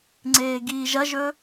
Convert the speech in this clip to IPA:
ŋ͡ǀ eː ɡ iː ʒ ɐ ʒ ɵ

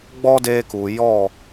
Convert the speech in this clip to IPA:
ɡ͡b ɔ˦ d eː˧ k u˨ j ɔ˦˨

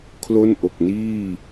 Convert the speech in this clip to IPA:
kʰ l o˥˩ n ʔ o˨˩ k̚ n iː˥˩

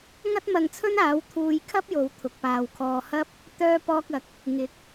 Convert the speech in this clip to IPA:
ŋ ɐ˥ t̚ m ɐ˧ ŋ t͡sʰ ɵ˥ n aː˨˥ w t̪ʰ uː˧ j kʰ ɐ˥ p̚ j o˨ w t̪ʰ ʊ˨ k̚ p aː˨ w kʰ ɔː˧ h ɐ˥ p̚ | t̪ œː˧ p ɔː˧ k̚ ɐ˨ k̚ | ŋ ɪ˨˥ k̚

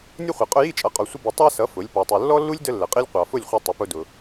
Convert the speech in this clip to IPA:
nʲ ə˥ χʷ i˩ qʼ ʊ˧ j i˥˩ t͡ʃʼ ʌ˩˥ qʼ ɔ˩ sʷ ə˧ b i˩ tˤ ɑ˥ s ʌ˩˥ f ʊ˩˥ lʲ p ɔ˩ tˤ u˩ lː ɔ˥ lː u˥ lʲ d ə˥ lː ə˩ qʼ i˥ lʲ qʷ ɑ˩ f ʊ˥˩ lʲ χʷ ʌ˧ tˤ ə˩˥ p ʊ˧ d ʊ˩

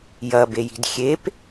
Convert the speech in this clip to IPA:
j ɐ b e j i̤ d xʲ e p

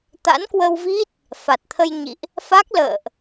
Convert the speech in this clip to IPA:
t̪ a̰˧˥ n k w ə˧ w v i˦˥ t̚ | f a˨˩ t̚ t̪ʰ ə˧ j ɲ ḭ˧˨ ʔ | f a˦˥ k̚ l ə̰ː˧˨ ʔ

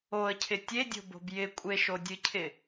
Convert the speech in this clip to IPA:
o ə̯ cʰ ɪ tʲ e dʲ o̤ b o̤ b j ɪ kʷʼ e ʃ o dʲ ɨ cʰ ɪ

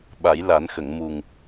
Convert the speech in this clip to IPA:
ɓ a˨˩˦ j l a˨˩˦ n x ə˨˩˨ ŋ m u˨˩ ŋ

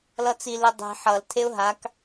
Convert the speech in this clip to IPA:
l ʌ t͡s i l i dˤ i̤ ħ ʌ l tʰ e ʊ̯ ɦ a k

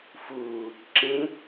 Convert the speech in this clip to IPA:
f uː | ǁ ẽ

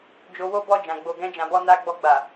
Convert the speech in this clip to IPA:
d͡ʒ o˧ w o˦ b ɔ˦˨ d͡ʒ ã˨ ɡ͡b o˨ ɡ ɛ̃˧ d͡ʒ ã˨ b ɔ˧ n a˧ ɡ͡b ɔ˧ ɡ͡b a˨

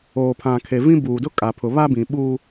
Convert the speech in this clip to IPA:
oː˨ pʰ ã˨ kʰ e˨ v ĩ˦ b uː˨ d ʊ˦ kʼ a˨ pʰ ʊ˨ β a˦ b ĩ˨ ɓ uː˦

